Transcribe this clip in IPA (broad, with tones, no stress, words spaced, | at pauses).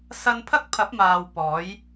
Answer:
sɐ˥n pʰɐ˥k̚ pʰɐ˨˥p̚maː˨w pɔː˨˥j